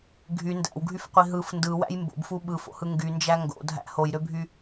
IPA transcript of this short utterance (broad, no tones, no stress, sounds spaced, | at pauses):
ɡʱ y n d æ̰ w ɡʱ y f qʷ i ɦ ɯ f n d ɯ w æ̰ j m b o̰ b f u ɓ ɯ f o̰ h ɯ ŋ ɡ y n d͡ʒ æ ŋ ɡ o̰ dʱ æ̰ h o j ɾ ø bʱ y